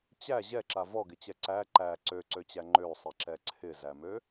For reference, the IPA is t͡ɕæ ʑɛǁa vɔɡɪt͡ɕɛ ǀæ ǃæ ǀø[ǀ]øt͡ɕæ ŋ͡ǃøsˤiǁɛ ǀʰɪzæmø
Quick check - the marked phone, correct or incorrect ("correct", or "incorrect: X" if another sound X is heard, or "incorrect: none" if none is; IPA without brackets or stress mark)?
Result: correct